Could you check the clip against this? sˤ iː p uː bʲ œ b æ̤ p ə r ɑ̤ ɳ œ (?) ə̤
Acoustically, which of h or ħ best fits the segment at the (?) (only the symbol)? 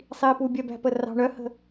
h